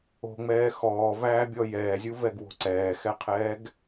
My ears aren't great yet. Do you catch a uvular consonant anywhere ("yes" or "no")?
yes